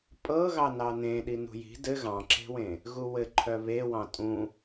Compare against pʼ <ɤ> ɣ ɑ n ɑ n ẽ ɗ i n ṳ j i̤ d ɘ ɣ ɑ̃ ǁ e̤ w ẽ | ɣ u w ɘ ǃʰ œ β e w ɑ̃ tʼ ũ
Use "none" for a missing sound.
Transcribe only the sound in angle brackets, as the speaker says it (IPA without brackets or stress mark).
ɤ